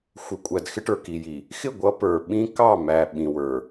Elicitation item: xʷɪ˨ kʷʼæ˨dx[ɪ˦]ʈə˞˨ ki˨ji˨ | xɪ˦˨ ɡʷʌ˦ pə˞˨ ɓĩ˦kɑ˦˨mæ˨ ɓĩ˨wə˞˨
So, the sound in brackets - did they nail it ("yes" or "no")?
yes